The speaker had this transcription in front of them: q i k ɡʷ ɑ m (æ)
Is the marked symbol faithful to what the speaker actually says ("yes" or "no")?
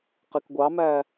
yes